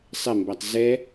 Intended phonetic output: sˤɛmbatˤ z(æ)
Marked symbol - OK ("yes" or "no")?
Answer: no